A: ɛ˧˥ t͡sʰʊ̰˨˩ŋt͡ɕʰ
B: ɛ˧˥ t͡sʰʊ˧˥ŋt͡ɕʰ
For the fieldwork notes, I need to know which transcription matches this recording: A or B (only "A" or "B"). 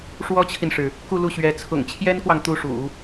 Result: A